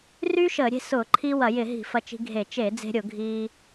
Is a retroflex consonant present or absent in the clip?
absent